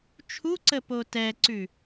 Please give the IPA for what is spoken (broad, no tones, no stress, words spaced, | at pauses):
t͡ʃʰuǀəpo tɛǀʉ